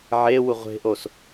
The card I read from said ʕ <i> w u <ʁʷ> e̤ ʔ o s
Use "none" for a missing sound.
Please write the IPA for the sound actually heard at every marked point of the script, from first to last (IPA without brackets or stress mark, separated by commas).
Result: e, ʁʷ